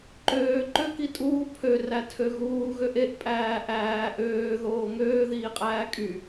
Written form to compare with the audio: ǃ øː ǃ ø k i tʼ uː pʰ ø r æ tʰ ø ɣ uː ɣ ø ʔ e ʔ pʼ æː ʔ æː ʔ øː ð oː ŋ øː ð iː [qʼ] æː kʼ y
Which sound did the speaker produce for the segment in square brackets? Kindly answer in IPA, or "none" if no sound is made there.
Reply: qʼ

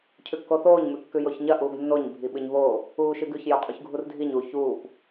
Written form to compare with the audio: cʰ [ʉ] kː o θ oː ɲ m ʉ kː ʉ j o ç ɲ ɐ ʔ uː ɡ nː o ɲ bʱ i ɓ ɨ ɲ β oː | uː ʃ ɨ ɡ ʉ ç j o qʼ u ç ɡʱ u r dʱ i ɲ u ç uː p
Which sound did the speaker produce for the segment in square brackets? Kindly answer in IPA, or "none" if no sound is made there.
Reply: ʉ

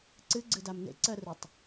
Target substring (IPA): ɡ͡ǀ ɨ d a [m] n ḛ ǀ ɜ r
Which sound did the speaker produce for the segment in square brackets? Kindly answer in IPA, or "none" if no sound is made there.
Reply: m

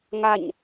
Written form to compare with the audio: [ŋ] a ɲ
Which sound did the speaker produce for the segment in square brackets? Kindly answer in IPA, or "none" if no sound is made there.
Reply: ŋ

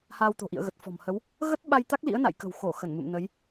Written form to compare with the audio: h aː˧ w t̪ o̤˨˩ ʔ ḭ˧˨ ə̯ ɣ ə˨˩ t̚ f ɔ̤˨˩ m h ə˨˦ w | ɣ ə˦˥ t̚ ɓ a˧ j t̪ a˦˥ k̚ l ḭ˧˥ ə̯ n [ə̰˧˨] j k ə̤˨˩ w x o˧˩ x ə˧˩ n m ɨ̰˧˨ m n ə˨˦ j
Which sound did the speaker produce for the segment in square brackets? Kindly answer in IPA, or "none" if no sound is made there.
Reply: a̰˧˨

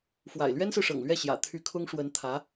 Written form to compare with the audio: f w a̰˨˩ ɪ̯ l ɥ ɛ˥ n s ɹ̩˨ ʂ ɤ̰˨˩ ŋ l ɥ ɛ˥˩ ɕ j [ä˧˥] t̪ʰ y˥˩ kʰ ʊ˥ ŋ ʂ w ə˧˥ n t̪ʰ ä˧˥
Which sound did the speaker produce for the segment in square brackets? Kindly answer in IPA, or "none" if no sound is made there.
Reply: ä̰˨˩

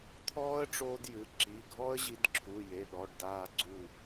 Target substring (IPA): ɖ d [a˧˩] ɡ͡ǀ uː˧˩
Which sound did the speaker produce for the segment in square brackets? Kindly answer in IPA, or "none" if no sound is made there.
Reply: aː˧˩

